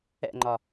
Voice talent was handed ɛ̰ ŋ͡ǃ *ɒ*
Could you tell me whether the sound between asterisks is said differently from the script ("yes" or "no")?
no